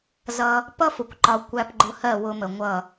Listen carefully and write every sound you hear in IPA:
z ʌ˧ | p ʌ˦ f ʊ˨ kʷ ǃ ɒ˨ kʷ æ˧ p ɡ͡ǃ ʊ˧ h ɜ˦˨ w ʊ˧ m ə˨ ŋʷ ʌ˦˨

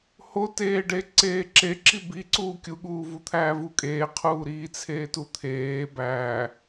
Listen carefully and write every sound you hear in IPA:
h o t eː ɖ e ǀ eː ǁ e ǁ i b i ǀ uː kʲ u ɠ uː v u t̪ʰ æː v u kʼ eː qʰ uː ɾ iː t͡sʰ eː t u t̪ʰ eː b æː

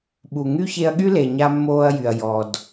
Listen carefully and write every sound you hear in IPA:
ɓ u˨ ŋ y˦ ç e˧ ɐ̯ ɠ y˦ l e˨ ɲ a˧ mː oː˧ ɐ̯ j y˨ ɐ̯ j ɔ˨ d

